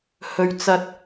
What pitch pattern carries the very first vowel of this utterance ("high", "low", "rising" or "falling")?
low